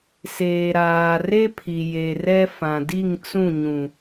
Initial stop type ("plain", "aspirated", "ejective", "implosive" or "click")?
aspirated